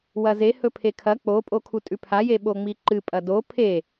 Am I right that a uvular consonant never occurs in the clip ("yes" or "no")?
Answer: yes